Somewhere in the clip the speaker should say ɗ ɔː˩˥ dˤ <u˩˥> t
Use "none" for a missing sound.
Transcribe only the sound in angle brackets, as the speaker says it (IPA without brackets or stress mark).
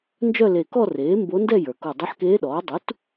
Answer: u˩˥